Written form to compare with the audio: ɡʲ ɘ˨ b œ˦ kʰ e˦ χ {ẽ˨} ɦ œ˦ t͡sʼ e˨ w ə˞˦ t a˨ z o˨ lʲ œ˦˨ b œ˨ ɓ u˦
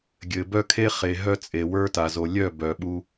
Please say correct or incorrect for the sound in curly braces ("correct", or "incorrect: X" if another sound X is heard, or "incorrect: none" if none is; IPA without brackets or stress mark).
incorrect: e˨